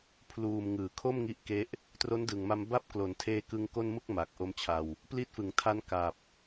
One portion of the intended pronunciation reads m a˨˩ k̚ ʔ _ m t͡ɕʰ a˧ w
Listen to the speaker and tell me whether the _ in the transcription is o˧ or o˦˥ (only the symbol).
o˦˥